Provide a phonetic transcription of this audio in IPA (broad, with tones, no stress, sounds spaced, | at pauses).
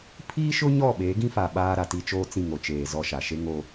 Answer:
pʰ iː˦ ʃ ʊ˦ ɲ ɔ˦˨ ɓ eː˨˦ ɡ ĩ˦ f a˨ ɓ aː˦ ɾ a˨ t i˦ t͡ʃ oː˦ t͡s ĩ˦˨ ŋ o˨ t͡ʃ eː˨ z ɔ˦ ʃ a˨ ʃ e˦ ŋ oː˦